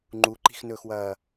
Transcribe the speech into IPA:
ŋ͡ǃuǃi̤xnɵːxwɐː

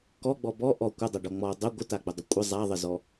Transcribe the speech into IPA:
kɔɡ͡bɔ bɔ ʔɔ kʷədˤaɖɔ ŋ͡mɔ dˤə ɡʷətaɡ͡bədˤə kʷʼə zˤaðˤəzɔ

